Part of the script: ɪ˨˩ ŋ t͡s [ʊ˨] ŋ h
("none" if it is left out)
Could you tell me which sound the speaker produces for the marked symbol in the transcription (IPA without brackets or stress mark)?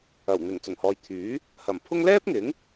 ʊ˨˩